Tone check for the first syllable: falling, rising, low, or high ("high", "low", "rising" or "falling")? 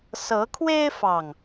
rising